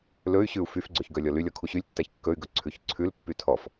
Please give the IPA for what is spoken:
lɵy̯ɕʉu̯ fyfɡ͡ǀɵç ɡœlʲɔlylʲɔ kʰuɕylʲtːæç kːɵy̯ɡɵ ǀʰʉçǀʰʉlpːy tʰɔf

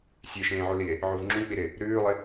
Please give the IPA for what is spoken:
sʲeʃẽːʕulie̯ | ʕuvŋ͡ǁũk͡pi ɾɪ | ɾʉːlˠɪ

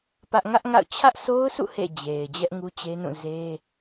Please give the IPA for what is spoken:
pä˦ʔ ŋä˦ʔŋa̰˦˨ʊ̯ t͡ɕʰä˦ʔsʰo˦ʊ̯sṵ˦˨ hḛ˦˨d͡ʑe˨ɪ̯ d͡ʑɛ˦ʔŋu˦t͡ɕe˦nũ˦˨ ze˦

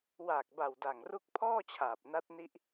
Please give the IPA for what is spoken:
waː˨˩k̚ba˨˩w da˨˩ŋru˦˥k̚pʰɔː˥˩t͡ɕʰaː˨˩p̚ na˦˥t̚ni˦˥ʔ

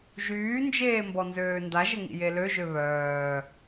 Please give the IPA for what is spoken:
ʒyːnd͡ʒeː mbɔnzøːndaʒə ŋḭjeløʒø βœː

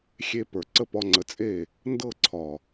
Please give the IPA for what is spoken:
xʲe˧ pə˞˨ǀə˦pɒ˧ŋ͡ǀə˨˦ t͡sʼe˦˨ | ndɤ˦˨ǀʰɒ˨

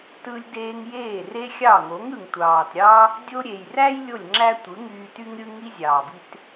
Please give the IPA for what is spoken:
tɯ˦lʲdeː˦ŋ jeː˦˨re˦xʲɑ˦˨ ŋo˨˦ŋɯ˨ŋtʷɑː˨tɾʲɑ˦ | dʲo˧ɾʲe˨jræ˦j lʲo˦˨lʲŋ͡ǁæ˦ tʷɯ˨˦ŋyː˧ty˦ŋɾʲɯ˦ ŋi˦zʲɑː˨bi˦t

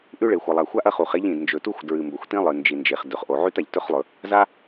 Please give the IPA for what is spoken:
ʔʉ˥ɭe˩ xʷɐ˩ lˠa˩xʷa˥ʔ ɐ˥χu˩χ e˥ʎĩ˩d nd͡ʒɵ˩tu˥xʷ dɹɨ˩mbɵ˩xʷtĩ˥ lˠɨ˩nd͡ʒi˩nd͡ʒe˩χ dɵ˩χ ʔo˩ʕʉ˥t a˩ʎtɵ˥χlˠɵ˩ | za˥

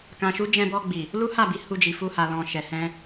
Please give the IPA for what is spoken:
kã˨ʃu˨˦ d͡ʒɛ̃˧bɔ˧ɡ͡bi˨ | lu˦ha˦˨bi˨˦ hu˧d͡ʒi˨fu˧ha˨ lɔ̃˨ ʃɛ˨hɛ̃˧

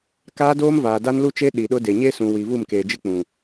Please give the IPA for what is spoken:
kaː˦doː˦mvaː˨ da˦nlu˦t͡ʃe˦ ɗi˨ɗʊ˦de˨ ɲe˦sũ˨ wi˨vu˦˨mkeː˨d͡ʒɪ˦ k͡pũ˨

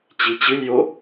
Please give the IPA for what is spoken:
t͡ɕit͡ɕɨlʲjo

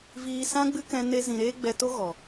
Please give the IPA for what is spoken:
viː˧sã˦ɡ͡bɨ˦ kɛ̃˧ ne˦zĩ˧ ɾeː˦ ɡ͡bɛ˧to˦ ɣɔ˨

